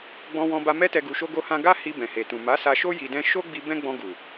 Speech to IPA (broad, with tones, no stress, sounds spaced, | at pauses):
ɡ͡b ɔ̃˧ w ɔ̃˧ b a˧ m ɛ˦ t ɛ˧ ɡ u˧ ʃ o˦ ɡ o˦ h ã˦ ɡ a˦ h i˧ b ɛ̃˨ h e˨ t ũ˨ m a˨˦ s a˧ ʃ o˦ j i˧ d ɛ̃˦ ʃ o˦ ɡ͡b i˦ b ɛ̃˦ ɡ͡b ɔ̃˧ ɡ u˨